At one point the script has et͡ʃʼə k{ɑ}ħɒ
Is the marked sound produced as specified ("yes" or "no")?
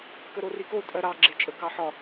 yes